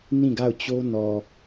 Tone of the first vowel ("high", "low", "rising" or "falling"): falling